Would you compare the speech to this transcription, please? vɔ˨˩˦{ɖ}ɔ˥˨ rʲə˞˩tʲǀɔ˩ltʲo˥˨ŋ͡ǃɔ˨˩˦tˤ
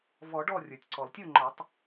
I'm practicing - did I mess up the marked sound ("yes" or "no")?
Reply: no